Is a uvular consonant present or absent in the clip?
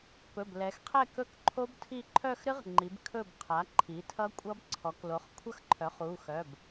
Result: present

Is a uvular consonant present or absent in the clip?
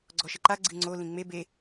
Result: absent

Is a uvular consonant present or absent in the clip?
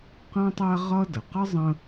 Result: present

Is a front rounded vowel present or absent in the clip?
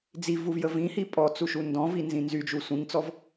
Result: present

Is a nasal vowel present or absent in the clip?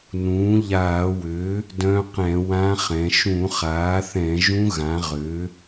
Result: present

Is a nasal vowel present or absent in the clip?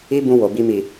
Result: present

